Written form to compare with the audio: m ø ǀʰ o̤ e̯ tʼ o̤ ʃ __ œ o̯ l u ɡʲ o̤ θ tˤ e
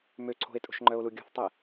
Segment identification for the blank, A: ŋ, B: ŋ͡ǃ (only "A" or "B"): B